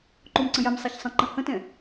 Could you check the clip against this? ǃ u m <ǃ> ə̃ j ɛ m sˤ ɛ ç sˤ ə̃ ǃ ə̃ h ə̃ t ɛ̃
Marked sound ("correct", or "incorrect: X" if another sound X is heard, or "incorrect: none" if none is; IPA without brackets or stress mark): incorrect: ǀ